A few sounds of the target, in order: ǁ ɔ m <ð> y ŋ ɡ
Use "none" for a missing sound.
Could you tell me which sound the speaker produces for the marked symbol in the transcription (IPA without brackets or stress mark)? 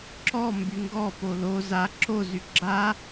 b